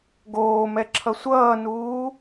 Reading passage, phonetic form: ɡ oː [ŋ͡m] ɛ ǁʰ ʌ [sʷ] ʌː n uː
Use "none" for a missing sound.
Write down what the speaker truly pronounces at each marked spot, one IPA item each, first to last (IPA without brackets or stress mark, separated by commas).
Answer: m, sʷ